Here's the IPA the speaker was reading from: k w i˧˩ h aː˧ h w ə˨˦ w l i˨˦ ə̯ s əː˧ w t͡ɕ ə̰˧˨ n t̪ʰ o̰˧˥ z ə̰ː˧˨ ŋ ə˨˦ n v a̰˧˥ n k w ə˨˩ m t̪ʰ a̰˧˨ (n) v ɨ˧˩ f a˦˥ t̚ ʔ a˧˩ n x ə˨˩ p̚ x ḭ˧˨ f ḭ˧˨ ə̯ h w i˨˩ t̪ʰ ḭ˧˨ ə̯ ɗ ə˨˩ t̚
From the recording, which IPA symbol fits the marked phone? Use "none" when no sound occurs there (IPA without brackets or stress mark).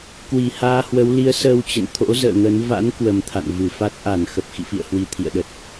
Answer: n